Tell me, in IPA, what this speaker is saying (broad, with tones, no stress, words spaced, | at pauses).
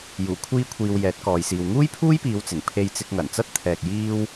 juː˨˩kʷʰiː˧kʷʰiː˨w jɛː˨˥t̚kɔː˨jsiː˨w ŋuː˥jpʰuː˥jpiː˨˧w t͡sɪ˨˩ŋ pʰe˧jt͡sɪ˧k̚ŋɐ˨˩nt͡sɐ˥t̚ t̪ʰɛː˧k̚ jiː˥w